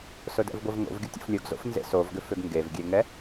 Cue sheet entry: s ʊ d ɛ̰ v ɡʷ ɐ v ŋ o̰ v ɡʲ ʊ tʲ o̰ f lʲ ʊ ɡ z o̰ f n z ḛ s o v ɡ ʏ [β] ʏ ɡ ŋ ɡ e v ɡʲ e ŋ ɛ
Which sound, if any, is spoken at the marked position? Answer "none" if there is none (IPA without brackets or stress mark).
f